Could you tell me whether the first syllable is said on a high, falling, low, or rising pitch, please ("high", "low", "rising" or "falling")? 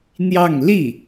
falling